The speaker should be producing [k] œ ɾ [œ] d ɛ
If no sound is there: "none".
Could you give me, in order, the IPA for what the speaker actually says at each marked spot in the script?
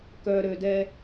k, ø

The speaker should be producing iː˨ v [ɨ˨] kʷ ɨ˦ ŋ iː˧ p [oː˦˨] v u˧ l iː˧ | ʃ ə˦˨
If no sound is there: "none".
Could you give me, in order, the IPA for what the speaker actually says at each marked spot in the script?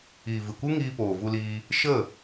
ɨ˨, oː˨

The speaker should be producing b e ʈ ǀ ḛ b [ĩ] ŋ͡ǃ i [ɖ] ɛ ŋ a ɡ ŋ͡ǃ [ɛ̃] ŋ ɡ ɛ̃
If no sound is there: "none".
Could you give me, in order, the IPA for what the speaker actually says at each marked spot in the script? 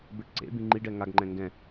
ĩ, ɖ, ɛ̃

